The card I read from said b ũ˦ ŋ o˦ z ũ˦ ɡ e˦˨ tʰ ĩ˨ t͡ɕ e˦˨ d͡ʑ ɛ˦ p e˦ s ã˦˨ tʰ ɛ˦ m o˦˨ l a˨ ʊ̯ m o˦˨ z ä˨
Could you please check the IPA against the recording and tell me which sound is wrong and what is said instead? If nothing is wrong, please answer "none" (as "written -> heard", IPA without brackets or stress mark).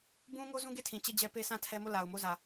none